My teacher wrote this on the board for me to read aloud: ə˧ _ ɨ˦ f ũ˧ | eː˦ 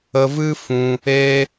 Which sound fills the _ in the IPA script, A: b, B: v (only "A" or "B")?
B